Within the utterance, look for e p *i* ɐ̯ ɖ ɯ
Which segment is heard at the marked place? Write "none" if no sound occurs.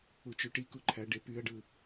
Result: y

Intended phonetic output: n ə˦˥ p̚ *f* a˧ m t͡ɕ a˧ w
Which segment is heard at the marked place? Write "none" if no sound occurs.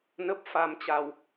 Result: f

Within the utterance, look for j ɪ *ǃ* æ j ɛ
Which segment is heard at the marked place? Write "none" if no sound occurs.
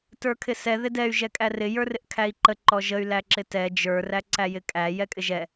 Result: kʼ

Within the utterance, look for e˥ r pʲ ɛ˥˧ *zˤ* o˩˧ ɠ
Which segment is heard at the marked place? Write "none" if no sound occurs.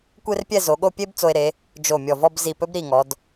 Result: z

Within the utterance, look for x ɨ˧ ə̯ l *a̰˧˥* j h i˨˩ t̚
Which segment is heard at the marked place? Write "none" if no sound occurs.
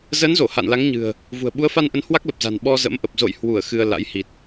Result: a̰˧˥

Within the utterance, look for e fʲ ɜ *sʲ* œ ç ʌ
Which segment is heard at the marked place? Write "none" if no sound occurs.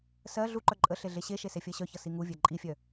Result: ɕ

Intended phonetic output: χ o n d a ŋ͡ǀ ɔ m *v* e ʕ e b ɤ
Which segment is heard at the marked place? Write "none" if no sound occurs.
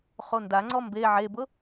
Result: b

